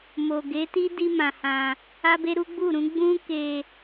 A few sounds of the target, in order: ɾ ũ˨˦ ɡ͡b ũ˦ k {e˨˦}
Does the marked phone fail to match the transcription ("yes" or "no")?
yes